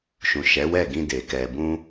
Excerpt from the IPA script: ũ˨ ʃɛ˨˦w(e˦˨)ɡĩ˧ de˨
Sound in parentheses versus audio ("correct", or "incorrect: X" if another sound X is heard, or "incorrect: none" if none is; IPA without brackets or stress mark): incorrect: ɛ˦˨